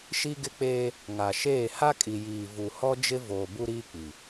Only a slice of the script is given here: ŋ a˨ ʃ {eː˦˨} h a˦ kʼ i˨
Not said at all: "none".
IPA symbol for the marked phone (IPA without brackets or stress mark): eː˦˨